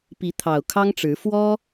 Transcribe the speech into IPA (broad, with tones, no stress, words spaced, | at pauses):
pi˨˦t̪ʰɑ˨˩ʊ̯kʰɑ˦ŋʈ͡ʂɻ̩˨˦ fwɔ˦